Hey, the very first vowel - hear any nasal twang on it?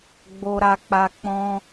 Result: no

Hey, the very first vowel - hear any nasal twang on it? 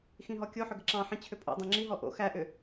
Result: yes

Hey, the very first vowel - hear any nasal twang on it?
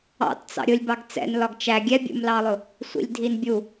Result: no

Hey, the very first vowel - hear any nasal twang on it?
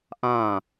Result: yes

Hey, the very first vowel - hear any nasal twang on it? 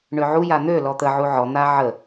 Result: no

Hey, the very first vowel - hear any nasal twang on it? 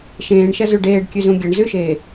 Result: yes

